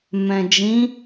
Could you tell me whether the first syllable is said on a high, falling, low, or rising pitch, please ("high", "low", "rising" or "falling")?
low